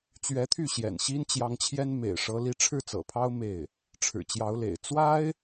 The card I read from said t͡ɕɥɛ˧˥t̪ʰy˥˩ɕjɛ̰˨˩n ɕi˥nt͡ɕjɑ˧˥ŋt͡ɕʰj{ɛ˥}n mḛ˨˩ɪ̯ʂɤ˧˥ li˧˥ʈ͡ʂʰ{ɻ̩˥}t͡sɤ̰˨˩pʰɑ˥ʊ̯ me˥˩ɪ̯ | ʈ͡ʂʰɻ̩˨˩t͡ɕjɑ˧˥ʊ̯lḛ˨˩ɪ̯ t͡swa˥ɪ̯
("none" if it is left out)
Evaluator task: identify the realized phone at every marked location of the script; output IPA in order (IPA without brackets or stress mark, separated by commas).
ɛ˥, ɻ̩˥˩